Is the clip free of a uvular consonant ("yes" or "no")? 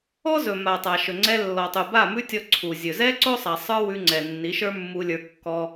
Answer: yes